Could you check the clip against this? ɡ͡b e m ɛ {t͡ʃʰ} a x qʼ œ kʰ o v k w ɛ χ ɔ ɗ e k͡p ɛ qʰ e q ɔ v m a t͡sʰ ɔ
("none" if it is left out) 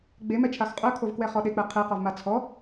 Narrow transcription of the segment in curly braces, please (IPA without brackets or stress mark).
t͡ʃʰ